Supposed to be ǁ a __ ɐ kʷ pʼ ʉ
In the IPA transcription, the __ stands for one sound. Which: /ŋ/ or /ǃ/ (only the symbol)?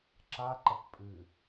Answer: ǃ